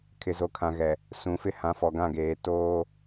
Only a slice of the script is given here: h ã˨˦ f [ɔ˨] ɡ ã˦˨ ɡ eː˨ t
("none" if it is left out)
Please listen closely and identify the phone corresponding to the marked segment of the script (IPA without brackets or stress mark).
ɔ˨